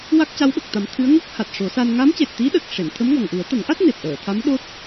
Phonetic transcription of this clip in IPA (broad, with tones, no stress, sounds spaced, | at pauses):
w a˦˥ k̚ c a˧˥ w ɓ ə˨˩ k̚ t̪ a˨˩˦ m t̪ʰ ɨ˧˥ ə̯ ŋ o˦˥ k̚ h a˨˩ t̚ ʂ o˨˩˦ s a˧ n ŋ a˧˥ m c e˨˩ t̚ t̪ i˧˥ ɗ ə˨˩ k̚ ʂ e˨˩˨ n t̪ʰ ə˧˥ m ŋ ɔ˨˩ ŋ ʔ u˨˩˦ ə̯ t̪ ə˨˩˦ ŋ ʔ a˦˥ t̚ n e˨˩ p̚ ʔ əː˨˩˨ t̪ʰ a˧˥ m ɗ o˦˥ t̚